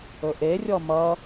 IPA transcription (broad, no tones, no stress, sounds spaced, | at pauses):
ɵ ʔ e rʲ ɔ m ʌ